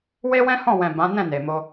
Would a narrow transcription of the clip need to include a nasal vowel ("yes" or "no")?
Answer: yes